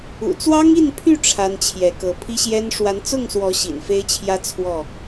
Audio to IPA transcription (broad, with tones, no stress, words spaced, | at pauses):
ṵ˨˩t͡swɑ˦ŋi˥˨npʰy˥˨ ʈ͡ʂʰa˦nt͡ɕʰjɛ˨˦kɤ˨˦ pʰi˦ɕjɛ˦n ʂwa˨˦nt͡sʊ˥˨ŋswɔ˨˦ ɕḭ˨˩nfe˦ɪ̯t͡ɕʰjä˦ t͡sʰwɔ˥˨